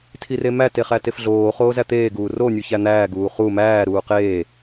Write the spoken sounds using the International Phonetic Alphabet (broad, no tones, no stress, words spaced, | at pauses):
tʰiremæ teχætefɮoː χoːzæt̪eː ɡuːro nʲuçæn̪æː ɡuːχu mæː ɾuːqeː